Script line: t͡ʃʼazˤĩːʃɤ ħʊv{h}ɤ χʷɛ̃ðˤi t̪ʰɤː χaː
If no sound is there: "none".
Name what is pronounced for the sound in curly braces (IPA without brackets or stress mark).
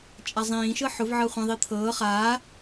ʕ